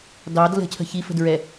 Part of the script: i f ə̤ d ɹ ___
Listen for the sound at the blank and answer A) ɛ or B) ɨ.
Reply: A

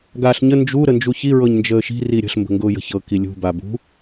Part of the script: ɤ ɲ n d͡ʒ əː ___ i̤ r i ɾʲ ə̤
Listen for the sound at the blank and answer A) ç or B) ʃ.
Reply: B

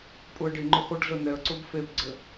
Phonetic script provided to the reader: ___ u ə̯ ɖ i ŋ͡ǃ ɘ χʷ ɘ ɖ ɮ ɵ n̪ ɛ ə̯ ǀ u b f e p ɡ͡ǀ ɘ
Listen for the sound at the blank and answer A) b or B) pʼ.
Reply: B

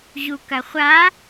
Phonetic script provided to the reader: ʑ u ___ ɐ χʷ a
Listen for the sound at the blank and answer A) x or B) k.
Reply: B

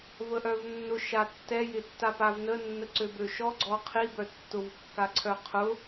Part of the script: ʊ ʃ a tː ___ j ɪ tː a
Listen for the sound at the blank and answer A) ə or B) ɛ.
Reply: B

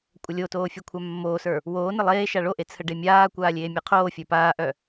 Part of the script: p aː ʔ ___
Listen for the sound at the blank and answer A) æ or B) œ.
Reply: B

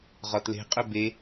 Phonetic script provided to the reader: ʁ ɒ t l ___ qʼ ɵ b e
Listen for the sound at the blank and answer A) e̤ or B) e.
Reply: A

